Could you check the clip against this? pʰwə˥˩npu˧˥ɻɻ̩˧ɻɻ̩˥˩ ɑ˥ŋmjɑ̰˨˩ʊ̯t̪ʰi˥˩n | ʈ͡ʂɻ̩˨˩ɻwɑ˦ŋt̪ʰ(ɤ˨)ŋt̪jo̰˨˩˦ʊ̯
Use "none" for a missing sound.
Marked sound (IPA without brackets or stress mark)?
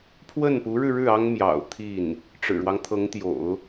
ɤ˧˥